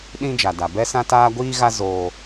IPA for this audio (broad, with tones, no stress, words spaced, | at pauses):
ɗĩ˦d͡ʒa˨da˨ bɛ˦sã˦taː˦ ɡʷiː˦ɣa˦ zoː˦